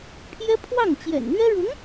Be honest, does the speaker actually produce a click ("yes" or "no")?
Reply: no